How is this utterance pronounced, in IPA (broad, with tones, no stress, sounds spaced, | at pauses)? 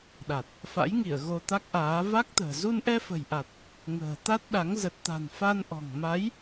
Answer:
ɗ a˨˩ t̚ | f a̰˧˥ j ŋ i˧˩ ə̯ ɣ o˧ t̪ a˦˥ k̚ ʔ aː˨˦ v a˦˥ k̚ t̪ ə̤ː˨˩ z u˧ n ʔ ɛ˧ f ə̤˨˩ j ʔ a˨˩ t̚ | ŋ ə̤ː˨˩ t̪ a˦˥ t̚ ɗ a˨˦ ŋ z ə˨˩ t̚ t̪ a̤˨˩ n f a˧ n ʔ ɔ̤˨˩ ŋ m a˨˦ j